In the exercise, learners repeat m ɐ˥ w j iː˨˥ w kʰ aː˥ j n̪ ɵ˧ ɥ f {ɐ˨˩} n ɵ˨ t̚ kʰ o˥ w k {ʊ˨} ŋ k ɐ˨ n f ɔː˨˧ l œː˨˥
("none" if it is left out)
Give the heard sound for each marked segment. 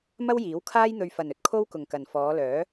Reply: ɐ˨, ʊ˨

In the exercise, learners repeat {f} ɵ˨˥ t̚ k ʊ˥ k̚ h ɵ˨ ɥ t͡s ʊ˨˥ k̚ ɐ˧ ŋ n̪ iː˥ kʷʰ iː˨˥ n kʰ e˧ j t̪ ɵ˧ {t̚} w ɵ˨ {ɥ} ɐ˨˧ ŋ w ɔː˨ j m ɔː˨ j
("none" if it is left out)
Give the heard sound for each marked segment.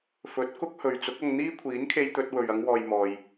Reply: f, t̚, ɥ

